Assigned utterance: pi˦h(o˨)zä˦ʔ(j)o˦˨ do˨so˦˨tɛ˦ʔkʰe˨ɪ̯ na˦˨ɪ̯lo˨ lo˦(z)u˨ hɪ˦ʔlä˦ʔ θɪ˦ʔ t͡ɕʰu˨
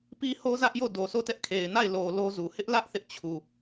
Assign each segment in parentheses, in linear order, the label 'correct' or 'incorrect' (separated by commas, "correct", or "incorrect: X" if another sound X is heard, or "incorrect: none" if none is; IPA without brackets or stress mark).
incorrect: o˦, correct, correct